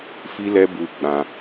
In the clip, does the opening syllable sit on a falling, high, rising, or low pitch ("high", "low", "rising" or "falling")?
high